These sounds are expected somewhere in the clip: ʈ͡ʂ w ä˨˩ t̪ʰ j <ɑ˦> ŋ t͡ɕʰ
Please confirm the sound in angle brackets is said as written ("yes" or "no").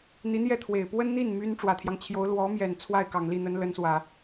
yes